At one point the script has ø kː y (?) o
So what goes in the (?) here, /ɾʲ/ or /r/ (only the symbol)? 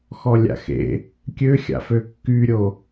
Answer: ɾʲ